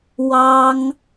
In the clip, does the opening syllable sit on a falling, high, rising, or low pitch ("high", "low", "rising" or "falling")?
high